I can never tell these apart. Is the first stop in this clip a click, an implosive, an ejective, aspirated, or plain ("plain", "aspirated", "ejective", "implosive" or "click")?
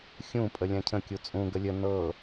ejective